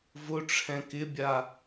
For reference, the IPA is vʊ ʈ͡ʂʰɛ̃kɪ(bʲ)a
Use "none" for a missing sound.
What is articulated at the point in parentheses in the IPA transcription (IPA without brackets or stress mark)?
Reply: bʲ